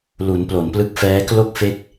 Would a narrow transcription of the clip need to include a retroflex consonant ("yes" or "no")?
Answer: no